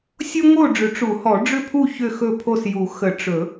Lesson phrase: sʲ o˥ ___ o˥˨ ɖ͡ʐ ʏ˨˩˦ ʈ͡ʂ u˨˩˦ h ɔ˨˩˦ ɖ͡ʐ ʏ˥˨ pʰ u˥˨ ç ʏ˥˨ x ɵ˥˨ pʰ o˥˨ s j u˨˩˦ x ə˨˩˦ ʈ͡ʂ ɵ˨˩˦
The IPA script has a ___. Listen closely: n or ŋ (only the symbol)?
ŋ